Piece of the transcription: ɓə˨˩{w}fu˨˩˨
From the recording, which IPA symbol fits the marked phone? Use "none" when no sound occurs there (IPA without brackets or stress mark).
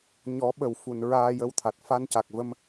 w